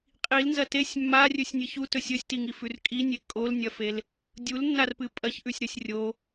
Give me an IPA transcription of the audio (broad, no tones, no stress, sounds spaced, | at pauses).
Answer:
qʼ i l n z ɐ t e sʲ mː a rʲ ɵ sʲ nʲ ɨ ç u t ɵ sʲ ɵ sʲ t i ŋ i f ʉ r kʼ i nʲ e kʼ o l nʲ ɐ f e l | dʲ u l nː a r p ɨ pʼ ɐ ç ʔ ʉ sʲ ɾ ɵ sʲ rʲ o